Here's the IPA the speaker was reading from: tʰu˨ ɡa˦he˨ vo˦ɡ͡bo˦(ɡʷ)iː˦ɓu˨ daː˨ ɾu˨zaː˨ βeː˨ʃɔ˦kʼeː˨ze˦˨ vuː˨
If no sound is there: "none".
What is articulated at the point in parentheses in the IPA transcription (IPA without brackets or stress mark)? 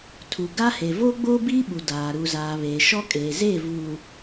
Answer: b